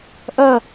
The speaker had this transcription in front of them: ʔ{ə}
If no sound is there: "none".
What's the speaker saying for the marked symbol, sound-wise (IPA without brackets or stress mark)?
ə